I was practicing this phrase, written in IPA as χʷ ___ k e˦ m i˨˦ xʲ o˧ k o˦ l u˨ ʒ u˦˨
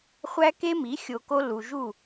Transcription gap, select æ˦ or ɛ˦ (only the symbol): æ˦